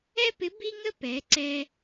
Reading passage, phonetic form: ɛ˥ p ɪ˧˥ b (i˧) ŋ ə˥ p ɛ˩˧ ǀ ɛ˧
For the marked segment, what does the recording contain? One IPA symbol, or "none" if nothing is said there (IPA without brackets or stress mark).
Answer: i˥